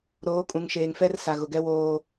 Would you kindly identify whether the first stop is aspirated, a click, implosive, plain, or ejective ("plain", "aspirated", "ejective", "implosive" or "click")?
ejective